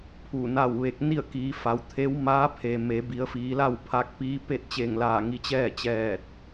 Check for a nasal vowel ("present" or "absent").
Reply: absent